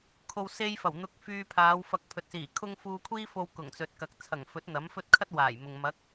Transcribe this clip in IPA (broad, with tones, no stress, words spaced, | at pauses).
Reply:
kʰo˨wse˧j fɐ˨˩w n̪ʊ˧k̚fyː˧pʰaː˨˧w fɐ˨k̚ pʰɵ˨t̚siː˨˩kʰʊ˥ŋ fuː˧kʷʰiː˥ fo˧w kʊ˨˩ŋt͡sɵ˨t̚kɐ˨k̚ t͡sʰɐ˨˩ŋfɵ˨˥t̚ n̪ɐ˨˥mfɵ˥t̚ kʰɐ˥t̚ waː˨˩jmʊ˨ŋ mɐ˨˥k̚